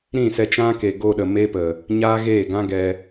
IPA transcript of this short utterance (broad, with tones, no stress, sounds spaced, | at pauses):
ɾ ĩ˦˨ s ɛ˧ t͡ʃ ã˦ k e˨ ɡ o˧ ɗ ə˨ m e˦ p ə˨ | ɲ aː˦ ɣ eː˦˨ ɡ ã˦ ɡ ɛ˧